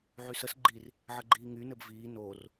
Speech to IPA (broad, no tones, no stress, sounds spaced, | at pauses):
ʕ y s ə s ɡ͡ǃ i r | ʕ ə ɡ͡ǃ iː ŋ y n ɘ b v iː n oː r